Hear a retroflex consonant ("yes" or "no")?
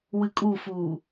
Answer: no